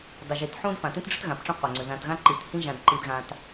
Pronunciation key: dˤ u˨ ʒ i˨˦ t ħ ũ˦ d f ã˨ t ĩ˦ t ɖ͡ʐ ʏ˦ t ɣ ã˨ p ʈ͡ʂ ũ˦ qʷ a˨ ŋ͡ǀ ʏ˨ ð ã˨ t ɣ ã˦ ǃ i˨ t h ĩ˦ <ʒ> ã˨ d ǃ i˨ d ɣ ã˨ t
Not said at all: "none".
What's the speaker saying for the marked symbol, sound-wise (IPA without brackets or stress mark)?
ʒ